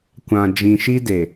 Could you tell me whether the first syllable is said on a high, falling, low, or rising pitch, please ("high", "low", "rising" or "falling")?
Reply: low